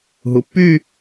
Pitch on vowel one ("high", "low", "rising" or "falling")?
low